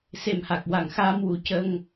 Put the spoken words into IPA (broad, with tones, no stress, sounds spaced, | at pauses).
s e˨˩ m h a˨˩ k̚ w a˨˩ ŋ x aː˧ m w u˨˩˦ c ə˧ ŋ